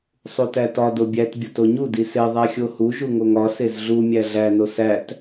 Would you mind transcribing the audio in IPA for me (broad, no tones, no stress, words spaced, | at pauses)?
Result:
sˤutætɒ dobʲæt bʲotoɲu dise ðˤæxʲohu ʒuŋoŋɒ sezɮu mʲæɮæ nosæt